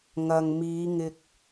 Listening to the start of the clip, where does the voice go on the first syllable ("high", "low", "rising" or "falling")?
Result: low